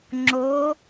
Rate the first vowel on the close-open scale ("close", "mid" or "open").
mid